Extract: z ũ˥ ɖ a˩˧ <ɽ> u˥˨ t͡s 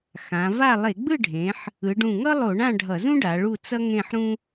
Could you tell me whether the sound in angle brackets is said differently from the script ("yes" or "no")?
yes